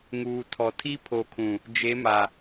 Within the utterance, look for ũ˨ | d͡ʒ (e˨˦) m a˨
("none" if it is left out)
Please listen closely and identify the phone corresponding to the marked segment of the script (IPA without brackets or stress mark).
e˨˦